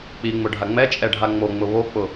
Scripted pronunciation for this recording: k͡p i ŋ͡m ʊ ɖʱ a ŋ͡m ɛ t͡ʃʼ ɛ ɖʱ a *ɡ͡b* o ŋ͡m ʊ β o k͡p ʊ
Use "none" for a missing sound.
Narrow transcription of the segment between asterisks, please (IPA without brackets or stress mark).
ŋ͡m